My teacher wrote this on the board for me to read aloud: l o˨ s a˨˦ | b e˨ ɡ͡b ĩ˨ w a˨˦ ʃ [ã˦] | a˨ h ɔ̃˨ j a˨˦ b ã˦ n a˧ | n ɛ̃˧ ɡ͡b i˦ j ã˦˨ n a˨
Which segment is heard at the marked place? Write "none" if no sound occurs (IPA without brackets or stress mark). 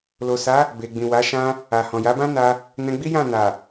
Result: ã˧